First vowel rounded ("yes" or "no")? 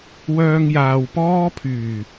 yes